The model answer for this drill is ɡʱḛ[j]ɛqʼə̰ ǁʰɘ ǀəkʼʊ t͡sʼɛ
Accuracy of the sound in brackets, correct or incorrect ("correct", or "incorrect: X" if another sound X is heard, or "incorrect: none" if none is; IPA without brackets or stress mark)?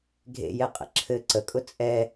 correct